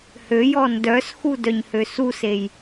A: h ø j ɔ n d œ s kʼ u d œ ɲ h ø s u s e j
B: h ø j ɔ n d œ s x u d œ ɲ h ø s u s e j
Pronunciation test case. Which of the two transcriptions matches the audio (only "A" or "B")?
B